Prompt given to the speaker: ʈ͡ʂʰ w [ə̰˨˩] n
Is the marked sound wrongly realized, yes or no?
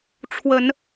yes